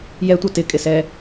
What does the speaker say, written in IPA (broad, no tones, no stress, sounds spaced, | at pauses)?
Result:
j ɛ tʷ ʌ t ɪ kʼ ɪ s ɛ